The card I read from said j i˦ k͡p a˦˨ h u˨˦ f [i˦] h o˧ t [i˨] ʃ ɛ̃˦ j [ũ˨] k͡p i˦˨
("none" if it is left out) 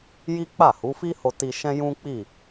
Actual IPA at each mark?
i˦, i˧, ũ˦

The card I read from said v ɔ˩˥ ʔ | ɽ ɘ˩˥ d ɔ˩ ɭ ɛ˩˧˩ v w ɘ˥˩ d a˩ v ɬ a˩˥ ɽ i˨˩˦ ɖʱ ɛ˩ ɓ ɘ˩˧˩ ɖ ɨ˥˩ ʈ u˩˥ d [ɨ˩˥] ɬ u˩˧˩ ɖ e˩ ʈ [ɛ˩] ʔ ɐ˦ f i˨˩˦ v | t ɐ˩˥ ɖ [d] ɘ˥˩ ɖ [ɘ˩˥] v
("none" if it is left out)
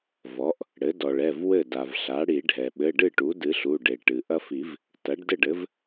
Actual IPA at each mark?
ɨ˩˥, ɨ˩, d, ɘ˩˥

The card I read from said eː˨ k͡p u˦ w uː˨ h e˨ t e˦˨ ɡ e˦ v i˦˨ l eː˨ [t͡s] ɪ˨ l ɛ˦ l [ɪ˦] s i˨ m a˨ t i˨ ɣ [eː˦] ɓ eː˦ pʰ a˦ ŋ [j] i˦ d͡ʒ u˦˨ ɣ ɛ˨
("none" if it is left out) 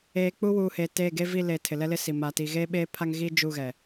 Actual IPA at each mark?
tʰ, ɪ˦, eː˦, ɣ

